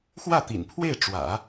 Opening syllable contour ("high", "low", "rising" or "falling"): falling